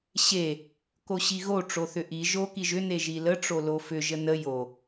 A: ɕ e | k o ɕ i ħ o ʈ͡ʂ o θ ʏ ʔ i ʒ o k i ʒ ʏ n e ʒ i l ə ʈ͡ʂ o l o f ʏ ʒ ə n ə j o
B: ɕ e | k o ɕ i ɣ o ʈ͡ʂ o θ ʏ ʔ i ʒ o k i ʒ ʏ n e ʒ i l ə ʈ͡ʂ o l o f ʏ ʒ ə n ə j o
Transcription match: B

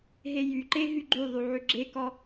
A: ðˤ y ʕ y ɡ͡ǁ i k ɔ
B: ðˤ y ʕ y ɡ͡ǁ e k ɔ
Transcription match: B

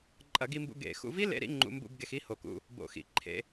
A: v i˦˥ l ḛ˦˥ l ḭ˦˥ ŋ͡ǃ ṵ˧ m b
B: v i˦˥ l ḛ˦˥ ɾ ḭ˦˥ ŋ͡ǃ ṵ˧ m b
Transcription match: B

